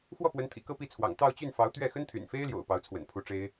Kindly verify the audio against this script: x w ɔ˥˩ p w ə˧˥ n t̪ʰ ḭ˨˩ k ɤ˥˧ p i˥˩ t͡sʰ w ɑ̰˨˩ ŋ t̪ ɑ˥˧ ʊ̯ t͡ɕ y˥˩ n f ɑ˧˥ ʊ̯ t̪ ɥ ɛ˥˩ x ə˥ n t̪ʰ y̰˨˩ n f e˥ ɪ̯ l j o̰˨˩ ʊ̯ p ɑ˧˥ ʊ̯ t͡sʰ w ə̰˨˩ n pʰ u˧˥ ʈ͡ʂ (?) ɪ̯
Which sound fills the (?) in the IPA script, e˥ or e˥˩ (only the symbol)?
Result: e˥